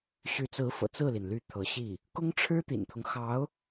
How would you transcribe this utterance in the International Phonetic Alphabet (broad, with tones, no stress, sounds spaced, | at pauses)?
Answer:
ɕ y˧˥ t͡s ɹ̩˧˥ f ɤ̰˨˩ t͡s ɹ̩˥˩ l i˩ n l y˥˩ t̪ʰ ɤ˧˥ ɕ i˥˩ | k ʊ˥ ŋ ʈ͡ʂʰ ɻ̩˥ t̪ ḭ˨˩ n t̪ʰ ʊ˦ ŋ x ɑ˧˥ ʊ̯